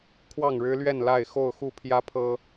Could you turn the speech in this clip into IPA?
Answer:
kʰ w ɑ˥˨ ŋ ɻ ɻ̩˦ l ɥ ɛ˥˨ n l a˥˨ ɪ̯ x o˥˨ ʊ̯ x u˥˨ pʰ j ä˦ pʰ ɤ˦

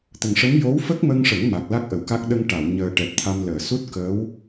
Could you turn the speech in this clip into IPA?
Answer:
t̪ ə˨˩ ŋ ʂ ə˧˥ m j o˧˥ w f ə˦˥ k̚ m ə˧ ŋ ʂ ə˨˩˦ ŋ m a˨˩ k̚ l a˦˥ k̚ ʔ ə˨˩˨ w k a˦˥ k̚ ɗ ə˧ ŋ ʈ a˨˩˨ w ɲ əː˨˩ ʈ ɛ˨˩ p̚ t̪ʰ a˧ m l əː˨˩˨ s u˦˥ t̚ k əː˧˥ w

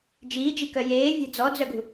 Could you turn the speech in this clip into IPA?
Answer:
d͡ʒ iː d͡ʒ i k œ j eː vʲ ɛ̤ d͡z ɔ d͡z œ ɡ ṳ

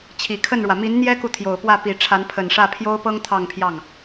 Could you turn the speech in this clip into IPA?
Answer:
t͡ɕʰ i˨˩ kʰ ə˥˩ n ɻ w ä˩ m i˧˥ n n̪ j ɛ˥ k u˨ t̪ʰ j o˨˩ ʊ̯ p w ä˥˩ p i˨˩ ʈ͡ʂʰ a˧˥ n pʰ ə˨˩ n ʂ ä˥˩ pʰ j o˥ ʊ̯ p ɤ˥ ŋ t̪ʰ ɑ˥˧ ŋ pʰ j ɑ˥˩ ŋ

